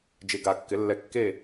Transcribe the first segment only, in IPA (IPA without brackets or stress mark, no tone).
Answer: d͡ʒ